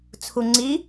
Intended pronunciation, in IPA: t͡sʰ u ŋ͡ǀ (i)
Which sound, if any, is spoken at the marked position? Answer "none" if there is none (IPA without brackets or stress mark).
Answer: i